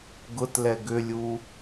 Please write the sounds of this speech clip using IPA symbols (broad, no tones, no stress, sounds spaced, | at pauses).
ɡ ʊ t l ɛ ɡ ʏ lʲ u